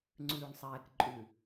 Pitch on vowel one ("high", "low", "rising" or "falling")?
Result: low